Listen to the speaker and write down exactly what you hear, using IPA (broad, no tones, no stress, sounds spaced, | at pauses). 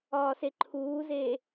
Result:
ɒː s e ǃʰ uː z eː